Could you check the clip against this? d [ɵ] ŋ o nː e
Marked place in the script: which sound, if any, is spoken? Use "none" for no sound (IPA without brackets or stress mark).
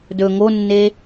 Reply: ɵ